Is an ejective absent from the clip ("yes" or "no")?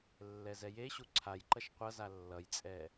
no